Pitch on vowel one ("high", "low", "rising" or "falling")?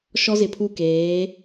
high